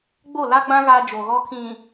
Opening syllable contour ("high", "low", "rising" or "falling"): falling